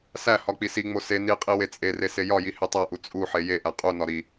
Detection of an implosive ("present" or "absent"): absent